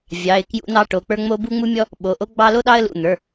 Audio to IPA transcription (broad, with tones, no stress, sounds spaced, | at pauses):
vʲ ɑ˩˧˩ ɪ̯ k j ṵ˦ n ɑ˦ ʈ o˩˧˩ k͡p ə˞˦ ŋ͡m o˦ b u˦ ŋ͡m u˦ mʲ ɔ˦ | ɓ o˩˧˩ ʔ o˦ ɡ͡b ɑ˦ l o˦ ɗ ɑ˦ ə̯ l ṵ˩˧˩ n̪ ə˞˩˧˩